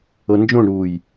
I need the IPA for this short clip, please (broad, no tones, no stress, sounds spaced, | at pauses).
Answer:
ɤ n d͡ʒ õ ɳ ɾ uː j